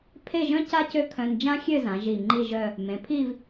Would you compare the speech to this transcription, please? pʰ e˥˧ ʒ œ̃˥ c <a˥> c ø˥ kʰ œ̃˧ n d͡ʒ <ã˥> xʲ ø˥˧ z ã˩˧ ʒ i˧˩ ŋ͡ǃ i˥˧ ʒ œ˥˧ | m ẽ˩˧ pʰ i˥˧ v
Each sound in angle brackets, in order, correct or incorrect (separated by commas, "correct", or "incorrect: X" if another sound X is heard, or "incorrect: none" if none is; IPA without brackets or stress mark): correct, correct